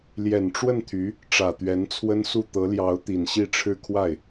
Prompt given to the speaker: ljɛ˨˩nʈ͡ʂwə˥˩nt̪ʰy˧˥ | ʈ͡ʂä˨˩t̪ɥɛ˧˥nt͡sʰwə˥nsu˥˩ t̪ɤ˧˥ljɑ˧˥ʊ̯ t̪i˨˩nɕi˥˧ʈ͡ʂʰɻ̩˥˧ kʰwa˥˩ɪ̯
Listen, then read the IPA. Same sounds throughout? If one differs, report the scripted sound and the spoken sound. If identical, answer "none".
none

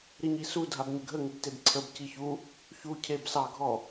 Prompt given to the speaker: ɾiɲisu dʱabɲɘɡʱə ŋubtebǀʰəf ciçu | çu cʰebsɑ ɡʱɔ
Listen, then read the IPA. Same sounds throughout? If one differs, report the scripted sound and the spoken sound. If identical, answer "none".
f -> b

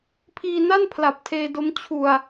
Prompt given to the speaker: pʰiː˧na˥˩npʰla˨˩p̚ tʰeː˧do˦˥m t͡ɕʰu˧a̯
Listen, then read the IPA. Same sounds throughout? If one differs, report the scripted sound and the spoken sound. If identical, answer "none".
none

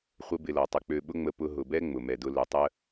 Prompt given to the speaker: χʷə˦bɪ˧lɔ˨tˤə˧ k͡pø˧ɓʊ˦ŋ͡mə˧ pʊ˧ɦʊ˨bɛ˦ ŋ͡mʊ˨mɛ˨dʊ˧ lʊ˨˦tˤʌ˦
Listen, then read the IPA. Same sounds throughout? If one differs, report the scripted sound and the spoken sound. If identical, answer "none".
ʌ˦ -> ə˦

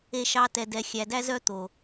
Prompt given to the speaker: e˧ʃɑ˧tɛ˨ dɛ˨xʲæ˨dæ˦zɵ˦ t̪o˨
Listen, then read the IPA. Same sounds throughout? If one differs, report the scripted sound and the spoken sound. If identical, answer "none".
ɵ˦ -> œ˦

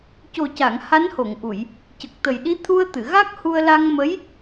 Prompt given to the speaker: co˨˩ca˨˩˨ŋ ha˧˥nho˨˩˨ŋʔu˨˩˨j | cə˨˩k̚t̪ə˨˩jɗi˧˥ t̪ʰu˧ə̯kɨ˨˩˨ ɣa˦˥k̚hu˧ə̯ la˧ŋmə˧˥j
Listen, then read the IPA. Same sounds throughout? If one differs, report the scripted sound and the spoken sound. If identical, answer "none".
k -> t̪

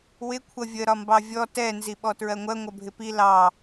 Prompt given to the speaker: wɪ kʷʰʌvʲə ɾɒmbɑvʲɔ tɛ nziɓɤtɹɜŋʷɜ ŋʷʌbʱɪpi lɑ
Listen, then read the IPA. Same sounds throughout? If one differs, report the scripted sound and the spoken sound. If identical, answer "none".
ɤ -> ɔ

